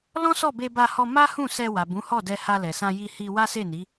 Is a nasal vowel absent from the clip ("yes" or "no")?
no